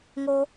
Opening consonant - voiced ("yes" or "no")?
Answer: yes